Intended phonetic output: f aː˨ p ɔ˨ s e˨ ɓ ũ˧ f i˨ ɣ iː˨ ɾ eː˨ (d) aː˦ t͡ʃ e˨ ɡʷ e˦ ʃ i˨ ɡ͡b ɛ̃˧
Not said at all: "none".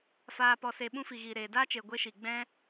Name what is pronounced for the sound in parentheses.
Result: d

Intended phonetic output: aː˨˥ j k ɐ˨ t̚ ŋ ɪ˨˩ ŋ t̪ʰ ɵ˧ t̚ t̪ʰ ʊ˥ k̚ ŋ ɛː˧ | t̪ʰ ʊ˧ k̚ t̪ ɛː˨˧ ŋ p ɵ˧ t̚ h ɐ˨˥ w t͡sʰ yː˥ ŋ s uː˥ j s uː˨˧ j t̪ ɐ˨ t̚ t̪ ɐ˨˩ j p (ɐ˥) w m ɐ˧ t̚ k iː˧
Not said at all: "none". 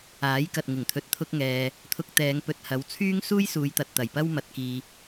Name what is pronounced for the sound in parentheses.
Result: ɐ˥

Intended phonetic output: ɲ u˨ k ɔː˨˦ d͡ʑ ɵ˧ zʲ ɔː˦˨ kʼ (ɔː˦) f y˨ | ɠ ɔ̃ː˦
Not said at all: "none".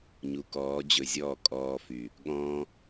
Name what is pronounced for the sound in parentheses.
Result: ɔː˧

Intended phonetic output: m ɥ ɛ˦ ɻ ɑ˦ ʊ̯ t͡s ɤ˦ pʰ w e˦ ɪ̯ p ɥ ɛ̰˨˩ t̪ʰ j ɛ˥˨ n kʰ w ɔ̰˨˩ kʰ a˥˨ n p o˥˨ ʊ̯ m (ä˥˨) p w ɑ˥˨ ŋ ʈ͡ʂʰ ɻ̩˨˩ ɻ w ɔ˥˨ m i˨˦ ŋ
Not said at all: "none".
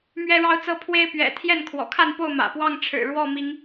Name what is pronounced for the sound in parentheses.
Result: ä̰˨˩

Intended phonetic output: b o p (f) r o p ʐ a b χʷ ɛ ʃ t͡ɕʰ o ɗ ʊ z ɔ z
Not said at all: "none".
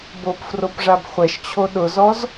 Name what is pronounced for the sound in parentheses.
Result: f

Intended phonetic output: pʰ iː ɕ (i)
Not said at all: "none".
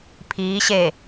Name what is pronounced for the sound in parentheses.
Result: e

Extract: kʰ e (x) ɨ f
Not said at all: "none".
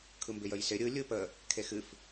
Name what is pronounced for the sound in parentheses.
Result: x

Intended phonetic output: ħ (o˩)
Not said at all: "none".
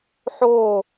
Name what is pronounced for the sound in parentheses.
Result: o˧˩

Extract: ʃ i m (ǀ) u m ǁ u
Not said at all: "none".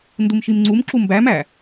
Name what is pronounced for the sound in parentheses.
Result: ŋ͡ǀ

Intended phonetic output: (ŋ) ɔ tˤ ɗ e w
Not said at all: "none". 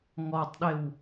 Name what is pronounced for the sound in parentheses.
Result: ŋ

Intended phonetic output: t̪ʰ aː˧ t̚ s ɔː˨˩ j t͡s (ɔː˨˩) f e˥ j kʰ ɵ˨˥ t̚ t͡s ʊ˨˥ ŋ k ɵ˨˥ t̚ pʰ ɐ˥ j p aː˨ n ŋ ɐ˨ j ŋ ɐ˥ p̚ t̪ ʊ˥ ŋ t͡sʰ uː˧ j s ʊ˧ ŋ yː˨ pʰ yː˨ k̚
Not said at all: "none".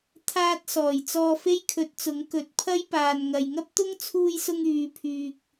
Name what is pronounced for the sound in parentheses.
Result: ɔː˧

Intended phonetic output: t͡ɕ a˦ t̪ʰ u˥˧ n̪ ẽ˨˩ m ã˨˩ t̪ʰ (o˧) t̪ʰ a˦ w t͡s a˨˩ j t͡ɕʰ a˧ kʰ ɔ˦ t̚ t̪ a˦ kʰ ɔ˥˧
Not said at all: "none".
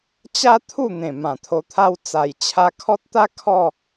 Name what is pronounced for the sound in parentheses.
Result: o˧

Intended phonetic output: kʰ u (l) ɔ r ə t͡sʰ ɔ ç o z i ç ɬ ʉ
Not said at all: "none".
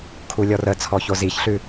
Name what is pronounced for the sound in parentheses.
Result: lʲ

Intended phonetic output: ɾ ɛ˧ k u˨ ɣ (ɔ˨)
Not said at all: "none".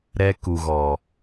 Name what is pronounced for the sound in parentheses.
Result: ɔ˨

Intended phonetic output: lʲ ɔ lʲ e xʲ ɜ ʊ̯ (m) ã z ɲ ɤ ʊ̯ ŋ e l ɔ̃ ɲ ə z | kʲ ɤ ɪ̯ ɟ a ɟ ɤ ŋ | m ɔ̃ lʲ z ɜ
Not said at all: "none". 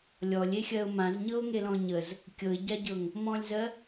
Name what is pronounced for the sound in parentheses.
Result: m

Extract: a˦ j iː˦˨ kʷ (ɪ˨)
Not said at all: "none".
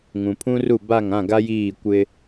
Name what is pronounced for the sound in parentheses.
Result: ɪ˦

